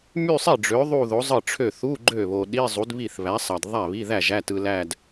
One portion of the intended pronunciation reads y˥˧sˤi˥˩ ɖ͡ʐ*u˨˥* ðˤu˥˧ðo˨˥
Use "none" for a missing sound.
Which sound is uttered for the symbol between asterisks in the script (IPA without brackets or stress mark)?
ø˨˥